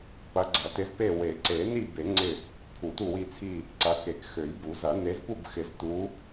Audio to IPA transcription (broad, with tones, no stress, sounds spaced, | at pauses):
p ɐ˨˦ ɡ͡ǀ ɐ˨˩˦ t ɪ˨˦ z p e˦˨ w e˨˩˦ ǀ e˨˩˦ n i˦˨ b e˨˩˦ ŋ͡ǀ ɪ˦˨ | pʰ u˨˩˦ t u˦˨ w i˦˨ t͡sʰ i˦˨ | ǀ ɐ˨˦ k e˨˩˦ k x ø˨˩˦ j b u˨˩˦ z ɐ˨˩˦ n e˨˦ z p u˦˨ b x ɪ˨˩˦ z t u˨˦